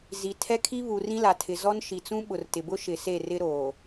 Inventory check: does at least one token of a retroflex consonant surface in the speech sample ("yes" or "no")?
no